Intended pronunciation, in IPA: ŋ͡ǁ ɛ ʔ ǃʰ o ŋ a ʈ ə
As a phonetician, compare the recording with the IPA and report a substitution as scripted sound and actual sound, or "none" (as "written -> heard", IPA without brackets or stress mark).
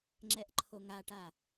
ə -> a